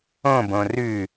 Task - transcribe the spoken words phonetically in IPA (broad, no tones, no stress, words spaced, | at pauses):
õbõ rʉ